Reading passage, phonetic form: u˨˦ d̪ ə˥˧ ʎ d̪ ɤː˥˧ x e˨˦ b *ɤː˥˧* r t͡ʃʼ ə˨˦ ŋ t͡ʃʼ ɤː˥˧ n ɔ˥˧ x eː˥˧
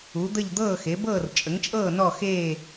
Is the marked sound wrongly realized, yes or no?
no